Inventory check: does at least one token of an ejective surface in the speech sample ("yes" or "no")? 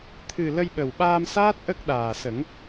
no